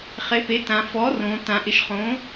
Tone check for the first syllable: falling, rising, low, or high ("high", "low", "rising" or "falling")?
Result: rising